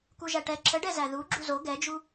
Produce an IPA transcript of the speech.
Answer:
kuʒæʈɛ ǁʰəɖɛzæ ðu ɡ͡ǁuzo ɡɛd͡ʒu

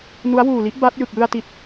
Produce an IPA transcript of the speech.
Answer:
nu˦˥a̯wuː˨˩li˦˥ʔ ba˦˥t̚ jɯ˨˩k̚jɯ˧a̯ ti˨˩t̚

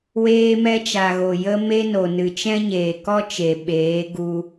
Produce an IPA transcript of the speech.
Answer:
weː˧mɛ˧t͡ʃa˨ɣo˨ jə˧me˧ no˨nɨ˨t͡ʃɛ̃˦ɲeː˨ kɔ˦t͡ʃe˨ ɓeː˨˦ɡu˧

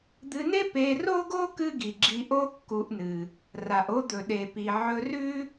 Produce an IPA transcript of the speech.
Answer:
d̪ɨ˧ne˥ pe˧ro˥ɡo˥ kɨ˥ɡi˩ɡ͡ǁi˧ʔo˥ kːu˧ʔnɨ˩ | ra˩ʔo˥d̪ɵ˩ ɗe˩pi˩ ʕɵ˧rʉ˥

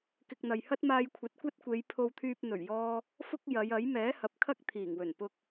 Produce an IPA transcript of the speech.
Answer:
kɪ˧k̚n̪ɐ˨j hɐ˥t̚maː˧jkʷʰɐ˨˥t̚ kʷɐ˥t̚kʷe˨˧j pʰo˧wt̪ʰyː˧p̚ n̪ɵ˨˩ɥjɔː˧ | fʊ˥k̚jɐ˨˧jɐ˨˥j mɛː˨˥hɐ˨p̚kʰɐ˥k̚ t̪ʰiː˨˩ŋwɵ˨˩npʊ˧k̚

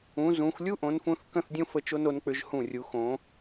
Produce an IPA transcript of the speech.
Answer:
ũ˩˧ zũ˩˧xʷ lʲu˥ʔõ˩˧nfũ˧θ kə̃˥˧θdʲõ˥ fə˧˩t͡ʃo˧no˩˧nk͡pʏ˩˧ʒ hũ˧˩rʲu˩˧ xõ˩˧

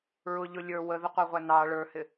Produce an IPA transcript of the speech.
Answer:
ɹʊʎʊ lʲə˞ wəðəqʷɑʁʷæ nɑ ɭə˞hɪ

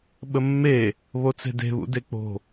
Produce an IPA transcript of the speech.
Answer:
ɓəmːe | βot͡se̤de̤βṵ dek͡po̤

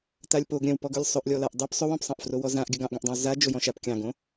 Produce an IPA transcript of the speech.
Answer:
talʲpoɡ ɾʲœ̃wpɔɡɵlʲ sˤɵʔlʲɔlaʔ dˤœp sˤɵwɔ̃psˤɑ̃ʔ frowɔzãʔ ɡʲœɡɑ̃ʔɡãʔdˤãw za d͡ʒojɔ̃ʃap kʲɑ̃ɡõ

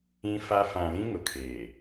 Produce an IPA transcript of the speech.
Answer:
ĩ˦fa˦ fã˨lĩ˦ ŋʊ˨kʰeː˨

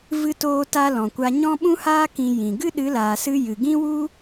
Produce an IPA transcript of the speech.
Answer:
vɨ˧toː˧ta˧ lɔ̃˨kʷa˧ ɲɔ̃˦ ɓũ˦haː˦ kĩ˧jĩ˨ ɡɨ˦ɗɨ˨˦laː˨sɨ˧ jɨ˨ɡĩ˦wu˦

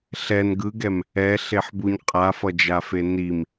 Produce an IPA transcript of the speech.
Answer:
ɬɛn ɡɯɡɛm | ɛɬeħbuɲ qʼafʌd͡ʒafe nim

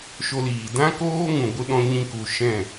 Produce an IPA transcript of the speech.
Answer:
ʃo˧liː˨ dã˦koː˦ ŋũ˨ɡʷɨ˧ɗɔ̃˧ ɲĩ˧ku˨ ʃɛ̃˦˨

